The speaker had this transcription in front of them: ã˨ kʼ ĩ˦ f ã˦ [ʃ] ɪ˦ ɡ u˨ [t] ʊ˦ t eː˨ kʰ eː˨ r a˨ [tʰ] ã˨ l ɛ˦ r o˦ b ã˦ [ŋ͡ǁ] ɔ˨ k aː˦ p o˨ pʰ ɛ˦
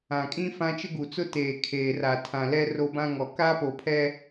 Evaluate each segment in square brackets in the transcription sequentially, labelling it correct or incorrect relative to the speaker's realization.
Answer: incorrect, incorrect, correct, incorrect

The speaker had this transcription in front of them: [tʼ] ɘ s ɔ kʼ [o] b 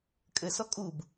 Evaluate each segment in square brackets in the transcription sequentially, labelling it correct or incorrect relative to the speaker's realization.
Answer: incorrect, incorrect

